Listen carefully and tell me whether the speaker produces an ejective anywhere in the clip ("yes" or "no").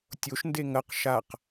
no